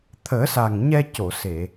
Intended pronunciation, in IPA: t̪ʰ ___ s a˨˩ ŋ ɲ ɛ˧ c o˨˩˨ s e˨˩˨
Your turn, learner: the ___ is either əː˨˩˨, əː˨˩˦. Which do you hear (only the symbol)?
əː˨˩˦